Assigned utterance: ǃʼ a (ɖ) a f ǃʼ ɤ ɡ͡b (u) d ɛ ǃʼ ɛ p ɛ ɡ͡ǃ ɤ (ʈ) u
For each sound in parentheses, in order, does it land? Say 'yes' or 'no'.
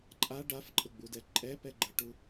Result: yes, yes, yes

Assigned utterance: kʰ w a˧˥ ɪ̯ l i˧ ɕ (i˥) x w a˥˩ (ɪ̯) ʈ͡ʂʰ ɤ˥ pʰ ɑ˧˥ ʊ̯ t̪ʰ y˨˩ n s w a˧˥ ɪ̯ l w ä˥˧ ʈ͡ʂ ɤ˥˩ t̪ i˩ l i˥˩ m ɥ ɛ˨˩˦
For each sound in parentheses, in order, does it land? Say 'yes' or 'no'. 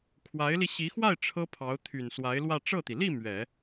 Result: no, yes

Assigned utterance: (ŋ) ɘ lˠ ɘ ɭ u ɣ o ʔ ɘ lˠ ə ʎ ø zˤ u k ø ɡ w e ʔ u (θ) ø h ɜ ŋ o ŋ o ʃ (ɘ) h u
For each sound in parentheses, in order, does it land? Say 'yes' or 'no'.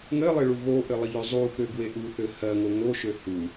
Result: yes, yes, no

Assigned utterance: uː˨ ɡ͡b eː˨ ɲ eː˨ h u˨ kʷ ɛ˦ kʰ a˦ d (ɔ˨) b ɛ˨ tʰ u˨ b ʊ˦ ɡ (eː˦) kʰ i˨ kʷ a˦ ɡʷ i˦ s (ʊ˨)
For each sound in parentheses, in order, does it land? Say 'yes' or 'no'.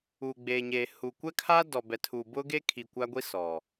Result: yes, no, no

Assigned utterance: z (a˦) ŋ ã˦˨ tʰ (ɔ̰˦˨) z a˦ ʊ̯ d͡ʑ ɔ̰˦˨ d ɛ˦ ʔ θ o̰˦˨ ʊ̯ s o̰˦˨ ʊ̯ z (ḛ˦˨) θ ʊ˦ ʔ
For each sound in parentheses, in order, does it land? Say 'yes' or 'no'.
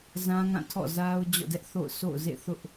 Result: no, yes, yes

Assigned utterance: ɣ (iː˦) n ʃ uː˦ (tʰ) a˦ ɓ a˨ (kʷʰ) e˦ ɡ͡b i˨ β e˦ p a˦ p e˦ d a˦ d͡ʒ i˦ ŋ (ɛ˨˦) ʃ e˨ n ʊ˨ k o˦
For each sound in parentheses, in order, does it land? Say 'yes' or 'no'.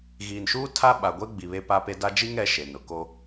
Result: no, yes, no, yes

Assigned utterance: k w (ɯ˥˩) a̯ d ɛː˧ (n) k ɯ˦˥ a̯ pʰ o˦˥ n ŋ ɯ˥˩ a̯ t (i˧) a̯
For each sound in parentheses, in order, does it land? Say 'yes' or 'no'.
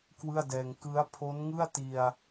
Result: yes, no, yes

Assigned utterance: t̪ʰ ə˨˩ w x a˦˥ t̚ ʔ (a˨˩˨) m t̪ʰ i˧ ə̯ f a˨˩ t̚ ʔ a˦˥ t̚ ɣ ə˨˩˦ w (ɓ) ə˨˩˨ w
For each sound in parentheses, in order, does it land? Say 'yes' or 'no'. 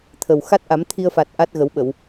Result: no, yes

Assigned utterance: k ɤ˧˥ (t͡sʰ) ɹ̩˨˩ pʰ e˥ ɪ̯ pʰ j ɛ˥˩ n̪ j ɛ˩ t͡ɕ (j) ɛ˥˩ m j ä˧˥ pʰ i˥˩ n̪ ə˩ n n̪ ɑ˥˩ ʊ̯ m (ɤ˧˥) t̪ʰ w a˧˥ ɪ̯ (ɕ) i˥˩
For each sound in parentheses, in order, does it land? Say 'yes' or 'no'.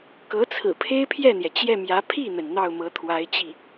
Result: yes, yes, yes, no

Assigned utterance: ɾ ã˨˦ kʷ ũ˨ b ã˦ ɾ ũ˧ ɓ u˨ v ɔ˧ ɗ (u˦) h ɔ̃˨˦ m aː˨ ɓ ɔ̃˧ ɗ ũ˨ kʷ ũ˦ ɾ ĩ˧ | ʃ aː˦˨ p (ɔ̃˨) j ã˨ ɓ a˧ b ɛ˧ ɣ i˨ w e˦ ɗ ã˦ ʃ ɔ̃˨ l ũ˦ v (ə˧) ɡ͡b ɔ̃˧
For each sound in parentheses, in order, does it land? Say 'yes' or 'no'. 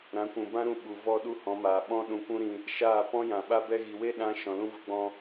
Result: yes, no, yes

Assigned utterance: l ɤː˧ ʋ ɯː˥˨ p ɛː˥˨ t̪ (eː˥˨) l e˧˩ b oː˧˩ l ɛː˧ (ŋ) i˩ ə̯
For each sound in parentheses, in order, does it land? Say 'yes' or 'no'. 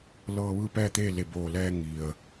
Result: yes, yes

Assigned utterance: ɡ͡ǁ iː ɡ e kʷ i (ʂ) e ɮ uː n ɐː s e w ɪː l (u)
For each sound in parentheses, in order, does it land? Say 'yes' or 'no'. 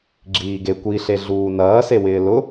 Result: no, no

